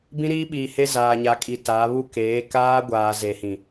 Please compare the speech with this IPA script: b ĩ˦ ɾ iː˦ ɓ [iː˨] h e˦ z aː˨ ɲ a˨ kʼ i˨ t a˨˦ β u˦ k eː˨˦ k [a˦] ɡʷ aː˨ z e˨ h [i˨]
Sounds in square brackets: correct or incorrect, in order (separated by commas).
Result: correct, incorrect, incorrect